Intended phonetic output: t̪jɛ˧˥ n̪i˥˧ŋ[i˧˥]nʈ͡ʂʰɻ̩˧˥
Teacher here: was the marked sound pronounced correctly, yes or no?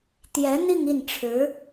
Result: no